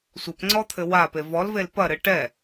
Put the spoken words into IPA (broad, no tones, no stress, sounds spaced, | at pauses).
sʷ ɘ p ŋ͡ǀ ɔ t̪ʰ ɘ w a p e v ɔ l v e l p ɐ ɾ ɨ ʈ ɛ